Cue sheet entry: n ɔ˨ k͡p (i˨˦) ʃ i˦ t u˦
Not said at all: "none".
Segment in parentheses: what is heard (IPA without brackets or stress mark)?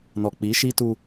i˨˦